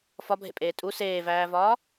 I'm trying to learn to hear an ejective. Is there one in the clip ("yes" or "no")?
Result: yes